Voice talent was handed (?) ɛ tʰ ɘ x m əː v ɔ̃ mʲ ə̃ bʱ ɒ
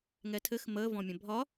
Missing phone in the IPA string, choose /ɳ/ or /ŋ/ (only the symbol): ŋ